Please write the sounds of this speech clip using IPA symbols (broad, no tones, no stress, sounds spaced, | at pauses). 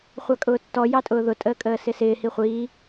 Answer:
χʷ ɑ kʼ ʊː tː ɔ j ɑ tʼ ʊː ð ʊ tʼ əː kʼ əː s ɪ s ɪː h i χʷ iː